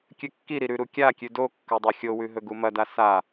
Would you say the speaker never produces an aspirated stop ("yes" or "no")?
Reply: yes